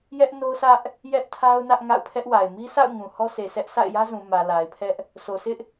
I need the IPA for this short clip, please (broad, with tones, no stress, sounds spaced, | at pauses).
j ɛ˦ ʔ n o˦ sʰ ä˦ ʔ | j ɛ˦ ʔ tʰ a˦ ʊ̯ n ä˦ ʔ ŋ a̰˦˨ ʊ̯ pʰ ɛ˦ ʔ w a˨ ɪ̯ m i˦ s a̰˦˨ ʊ̯ ŋ ũ˨ h ɔ˦ sʰ e˨ s ɛ˦ ʔ s a̰˦˨ ɪ̯ j ä˦ z ũ˨ m ä˨ l a˨ ɪ̯ pʰ ɛ˦ ʔ | s o˨ sʰ ɪ˦ ʔ